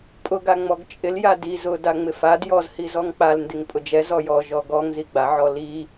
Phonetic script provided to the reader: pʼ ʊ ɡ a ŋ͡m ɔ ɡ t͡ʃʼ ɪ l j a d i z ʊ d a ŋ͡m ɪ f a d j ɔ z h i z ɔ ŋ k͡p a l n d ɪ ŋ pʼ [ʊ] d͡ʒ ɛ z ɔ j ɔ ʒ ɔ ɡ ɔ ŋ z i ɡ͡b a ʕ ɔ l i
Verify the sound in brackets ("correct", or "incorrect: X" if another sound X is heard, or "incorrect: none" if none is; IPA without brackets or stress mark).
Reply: correct